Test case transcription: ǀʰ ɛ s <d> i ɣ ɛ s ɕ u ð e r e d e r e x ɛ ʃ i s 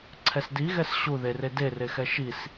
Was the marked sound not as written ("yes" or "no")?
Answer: no